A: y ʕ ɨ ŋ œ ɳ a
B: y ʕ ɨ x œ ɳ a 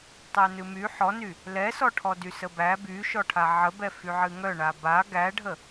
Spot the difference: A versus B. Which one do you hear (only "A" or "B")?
A